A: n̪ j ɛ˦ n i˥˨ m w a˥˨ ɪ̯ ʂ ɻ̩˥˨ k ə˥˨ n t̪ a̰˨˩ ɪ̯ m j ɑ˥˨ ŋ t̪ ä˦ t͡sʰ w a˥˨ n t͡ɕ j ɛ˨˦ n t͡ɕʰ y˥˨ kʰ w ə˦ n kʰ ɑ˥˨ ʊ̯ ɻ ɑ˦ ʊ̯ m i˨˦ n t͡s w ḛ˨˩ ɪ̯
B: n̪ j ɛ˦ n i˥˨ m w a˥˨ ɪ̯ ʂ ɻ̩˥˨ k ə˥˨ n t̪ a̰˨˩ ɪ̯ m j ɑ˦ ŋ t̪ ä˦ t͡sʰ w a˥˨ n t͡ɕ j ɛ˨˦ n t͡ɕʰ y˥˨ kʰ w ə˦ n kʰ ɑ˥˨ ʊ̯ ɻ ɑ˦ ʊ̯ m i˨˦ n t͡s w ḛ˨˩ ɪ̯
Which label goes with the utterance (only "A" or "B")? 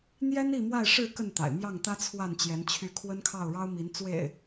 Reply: A